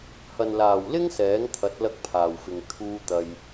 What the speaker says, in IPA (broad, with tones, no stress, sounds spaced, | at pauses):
h ɐ˨ n l aː˨˩ w l ɪ˥ ŋ s ɛː˨˥ ŋ t̪ʰ ɐ˨˥ t̚ l ɐ˥ k̚ pʰ aː˨˩ w f ɪ˨ ŋ t̪ʰ uː˧ t̪ ɐ˨ j